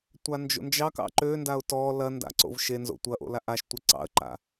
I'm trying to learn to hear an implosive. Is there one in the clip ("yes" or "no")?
no